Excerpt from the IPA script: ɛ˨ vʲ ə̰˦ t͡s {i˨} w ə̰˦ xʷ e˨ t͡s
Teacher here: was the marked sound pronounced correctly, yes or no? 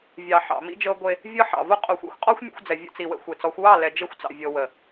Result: yes